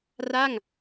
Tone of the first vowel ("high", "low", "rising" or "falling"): falling